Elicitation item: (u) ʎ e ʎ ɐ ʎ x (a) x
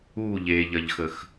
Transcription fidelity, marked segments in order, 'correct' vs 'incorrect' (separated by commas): correct, incorrect